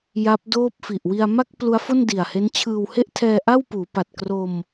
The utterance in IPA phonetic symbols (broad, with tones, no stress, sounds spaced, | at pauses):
j a˦˥ p̚ d oː˥˩ p̚ f i˨˩ ʔ w i˧ a̯ m a˥˩ k̚ p l u˦˥ a̯ f o˥˩ n d i˨˩ a̯ h e˦˥ n t͡ɕʰ ɯː˧ w h e˥˩ ʔ tʰ ɛː˧ ʔ a˥˩ w p uː˩˦ p a˨˩ t̚ k r o˧ m